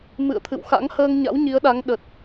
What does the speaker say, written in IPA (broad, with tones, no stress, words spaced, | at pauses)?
mɨ̰˧˨ə̯t̪ʰɨ̰˧˨wxa̰˧˥ŋ həː˧ŋɲa̰˧˥w ɲi˨˦ə̯ɗa˨˦ŋ ɗə˨˩t̚